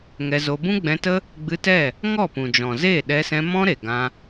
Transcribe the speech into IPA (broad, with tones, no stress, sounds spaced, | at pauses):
ŋ ɛ˧ z o˧ b ũ˦ ɡ͡b ɛ̃˧ t ə˦ | ɡ͡b ɨ˧ t ɛ˦˨ | ŋ ɔ˦˨ p ũ˨ d͡ʒ ɔ̃˨ z e˦˨ ɗ ɛ˧ s ɛ̃˧ m ɔ̃˦ ɾ e˨ ɡ ã˧